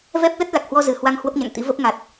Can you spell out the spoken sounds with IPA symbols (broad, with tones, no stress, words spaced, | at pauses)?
vɛ˦˥p̚lə˦˥t̚ la˨˩k̚hwɔ˧ zɨ˧˩hwa˧ŋ hwə˦˥p̚ɲa̰˧˨ŋt̪ḭ˧˥və˦˥p̚ ŋa˨˩t̚